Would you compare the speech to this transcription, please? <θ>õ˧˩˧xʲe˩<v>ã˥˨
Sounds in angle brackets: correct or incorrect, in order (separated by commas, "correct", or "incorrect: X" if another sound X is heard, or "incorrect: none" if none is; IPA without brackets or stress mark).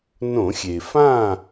incorrect: n, incorrect: f